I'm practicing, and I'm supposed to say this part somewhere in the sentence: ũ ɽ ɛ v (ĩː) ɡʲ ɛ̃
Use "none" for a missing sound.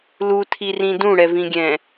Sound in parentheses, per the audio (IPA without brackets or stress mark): ĩ